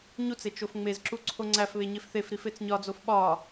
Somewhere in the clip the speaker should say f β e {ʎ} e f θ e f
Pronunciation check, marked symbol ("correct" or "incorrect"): incorrect